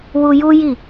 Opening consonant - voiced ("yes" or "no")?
yes